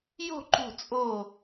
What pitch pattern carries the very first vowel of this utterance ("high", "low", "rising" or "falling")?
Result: falling